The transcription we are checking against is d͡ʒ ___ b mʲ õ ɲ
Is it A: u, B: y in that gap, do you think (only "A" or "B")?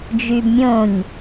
B